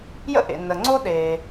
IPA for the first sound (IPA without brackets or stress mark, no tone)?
j